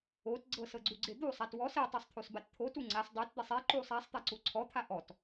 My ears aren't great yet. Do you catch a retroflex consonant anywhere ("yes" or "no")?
no